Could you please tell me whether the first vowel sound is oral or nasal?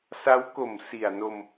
oral